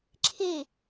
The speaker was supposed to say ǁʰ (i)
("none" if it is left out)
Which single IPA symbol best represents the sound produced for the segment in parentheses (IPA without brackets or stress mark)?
i